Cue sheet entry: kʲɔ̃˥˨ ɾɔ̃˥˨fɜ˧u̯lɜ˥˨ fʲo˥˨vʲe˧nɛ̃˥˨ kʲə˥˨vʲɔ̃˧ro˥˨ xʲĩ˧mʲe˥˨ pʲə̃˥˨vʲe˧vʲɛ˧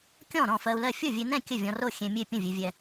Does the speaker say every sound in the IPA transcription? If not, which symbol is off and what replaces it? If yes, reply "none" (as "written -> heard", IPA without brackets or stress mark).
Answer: ĩ˧ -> ẽ˧